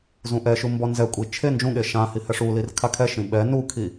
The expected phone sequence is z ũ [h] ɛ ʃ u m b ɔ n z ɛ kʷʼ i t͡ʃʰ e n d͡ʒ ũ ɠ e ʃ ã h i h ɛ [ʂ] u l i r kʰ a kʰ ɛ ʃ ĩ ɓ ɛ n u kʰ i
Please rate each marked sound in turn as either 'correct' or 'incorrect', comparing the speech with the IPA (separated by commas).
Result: incorrect, correct